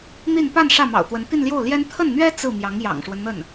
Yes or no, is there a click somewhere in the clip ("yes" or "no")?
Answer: no